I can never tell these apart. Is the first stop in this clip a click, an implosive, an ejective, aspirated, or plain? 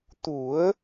plain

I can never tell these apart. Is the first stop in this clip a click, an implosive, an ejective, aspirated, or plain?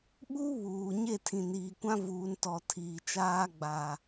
implosive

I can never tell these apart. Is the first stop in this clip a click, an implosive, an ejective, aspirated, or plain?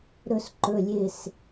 click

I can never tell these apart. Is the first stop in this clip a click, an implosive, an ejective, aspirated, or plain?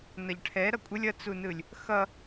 aspirated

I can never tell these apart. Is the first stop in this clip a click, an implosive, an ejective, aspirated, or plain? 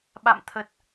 implosive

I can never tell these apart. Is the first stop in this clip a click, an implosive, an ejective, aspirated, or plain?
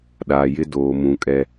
implosive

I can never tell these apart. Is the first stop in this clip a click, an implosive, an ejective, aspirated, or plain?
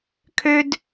aspirated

